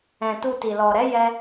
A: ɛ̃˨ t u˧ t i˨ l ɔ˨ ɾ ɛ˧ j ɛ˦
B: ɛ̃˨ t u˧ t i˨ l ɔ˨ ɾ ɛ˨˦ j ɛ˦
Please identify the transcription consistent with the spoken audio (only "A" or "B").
B